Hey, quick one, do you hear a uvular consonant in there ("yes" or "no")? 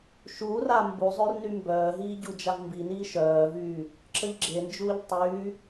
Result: no